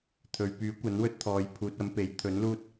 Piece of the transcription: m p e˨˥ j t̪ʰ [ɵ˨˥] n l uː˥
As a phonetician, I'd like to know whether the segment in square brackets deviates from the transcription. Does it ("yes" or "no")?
no